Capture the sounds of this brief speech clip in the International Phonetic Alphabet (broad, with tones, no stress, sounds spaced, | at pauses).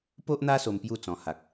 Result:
p o˦ ʔ n̪ a˦ s o˧ m p j u˥˧ t͡s ɔ̃˨˩ h a˨ k̚